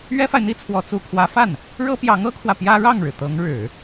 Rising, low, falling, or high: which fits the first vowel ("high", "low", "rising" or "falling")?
high